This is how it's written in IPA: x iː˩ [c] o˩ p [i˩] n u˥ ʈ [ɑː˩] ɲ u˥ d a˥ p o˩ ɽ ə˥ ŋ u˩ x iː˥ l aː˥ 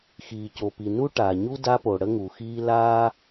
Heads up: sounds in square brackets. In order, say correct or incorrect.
correct, correct, incorrect

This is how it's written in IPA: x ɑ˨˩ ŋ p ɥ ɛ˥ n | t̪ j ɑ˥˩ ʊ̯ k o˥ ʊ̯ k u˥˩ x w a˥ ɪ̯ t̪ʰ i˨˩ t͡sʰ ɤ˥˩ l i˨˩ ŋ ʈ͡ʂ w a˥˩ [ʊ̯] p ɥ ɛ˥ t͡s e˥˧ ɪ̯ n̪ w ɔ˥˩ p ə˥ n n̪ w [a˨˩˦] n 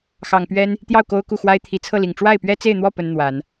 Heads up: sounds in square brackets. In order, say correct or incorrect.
incorrect, correct

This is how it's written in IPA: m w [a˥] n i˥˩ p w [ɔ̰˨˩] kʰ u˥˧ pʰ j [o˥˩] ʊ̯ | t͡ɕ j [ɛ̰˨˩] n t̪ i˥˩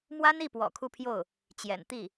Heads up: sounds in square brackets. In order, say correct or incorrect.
correct, correct, correct, correct

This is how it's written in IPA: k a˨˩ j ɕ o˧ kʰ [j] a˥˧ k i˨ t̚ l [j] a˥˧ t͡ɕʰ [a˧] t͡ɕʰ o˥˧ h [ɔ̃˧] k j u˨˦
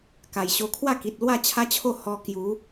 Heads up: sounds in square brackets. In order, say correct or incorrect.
incorrect, incorrect, incorrect, incorrect

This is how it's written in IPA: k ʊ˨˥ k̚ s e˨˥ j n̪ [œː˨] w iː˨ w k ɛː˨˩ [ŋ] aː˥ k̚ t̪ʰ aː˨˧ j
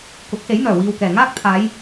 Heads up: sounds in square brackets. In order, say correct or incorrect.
incorrect, correct

